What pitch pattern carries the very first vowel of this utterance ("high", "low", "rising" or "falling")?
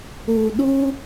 low